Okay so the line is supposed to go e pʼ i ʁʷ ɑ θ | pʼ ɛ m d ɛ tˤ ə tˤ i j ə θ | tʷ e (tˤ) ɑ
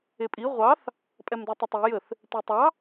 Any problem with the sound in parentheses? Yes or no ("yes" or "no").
no